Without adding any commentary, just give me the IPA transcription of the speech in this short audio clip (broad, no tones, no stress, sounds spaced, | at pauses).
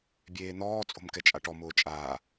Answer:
bʲ eː n̪ ɔː t͡sʼ o̤ m k ɛ t͡ʃʼ a ʈ ɔ m ʊː t͡ʃʼ aː